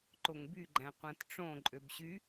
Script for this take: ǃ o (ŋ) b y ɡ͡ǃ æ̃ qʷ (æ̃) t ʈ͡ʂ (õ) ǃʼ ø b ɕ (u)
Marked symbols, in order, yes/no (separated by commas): yes, yes, yes, no